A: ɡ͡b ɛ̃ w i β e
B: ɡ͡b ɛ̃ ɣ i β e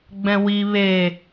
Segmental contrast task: A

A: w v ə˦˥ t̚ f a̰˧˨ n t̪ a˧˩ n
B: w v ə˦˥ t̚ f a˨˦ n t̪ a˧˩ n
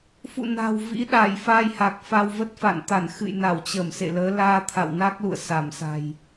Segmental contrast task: A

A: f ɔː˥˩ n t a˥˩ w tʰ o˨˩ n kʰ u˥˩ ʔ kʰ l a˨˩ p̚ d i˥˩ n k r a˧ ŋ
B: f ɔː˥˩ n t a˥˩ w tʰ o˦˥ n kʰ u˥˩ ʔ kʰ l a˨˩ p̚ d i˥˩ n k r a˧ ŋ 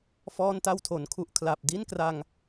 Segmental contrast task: A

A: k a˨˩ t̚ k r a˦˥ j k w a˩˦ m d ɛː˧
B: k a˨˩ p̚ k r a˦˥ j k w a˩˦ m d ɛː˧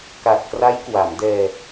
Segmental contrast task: A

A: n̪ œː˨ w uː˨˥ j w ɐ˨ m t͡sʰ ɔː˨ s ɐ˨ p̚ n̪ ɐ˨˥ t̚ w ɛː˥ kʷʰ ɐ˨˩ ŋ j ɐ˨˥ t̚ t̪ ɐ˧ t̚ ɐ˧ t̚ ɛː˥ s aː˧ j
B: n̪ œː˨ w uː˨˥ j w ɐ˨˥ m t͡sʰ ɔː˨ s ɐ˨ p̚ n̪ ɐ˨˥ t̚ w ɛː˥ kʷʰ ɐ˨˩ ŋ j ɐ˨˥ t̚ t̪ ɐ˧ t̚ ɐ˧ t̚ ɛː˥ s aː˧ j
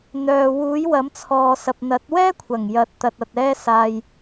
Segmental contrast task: B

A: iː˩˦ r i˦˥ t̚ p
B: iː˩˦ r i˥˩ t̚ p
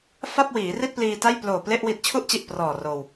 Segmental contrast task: B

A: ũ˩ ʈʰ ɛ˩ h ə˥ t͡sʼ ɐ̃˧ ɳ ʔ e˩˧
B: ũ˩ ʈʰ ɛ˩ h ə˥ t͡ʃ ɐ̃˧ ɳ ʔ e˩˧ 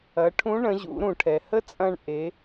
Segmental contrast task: A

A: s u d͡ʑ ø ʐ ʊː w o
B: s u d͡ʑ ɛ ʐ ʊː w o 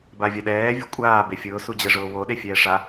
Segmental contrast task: B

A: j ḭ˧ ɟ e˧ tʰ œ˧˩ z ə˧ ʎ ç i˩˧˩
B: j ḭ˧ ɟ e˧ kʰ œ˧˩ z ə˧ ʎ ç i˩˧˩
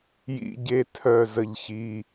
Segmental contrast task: A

